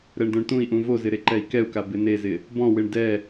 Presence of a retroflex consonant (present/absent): present